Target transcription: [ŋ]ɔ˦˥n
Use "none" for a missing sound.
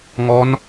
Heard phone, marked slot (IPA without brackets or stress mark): ŋ